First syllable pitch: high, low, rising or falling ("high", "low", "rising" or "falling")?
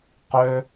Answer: high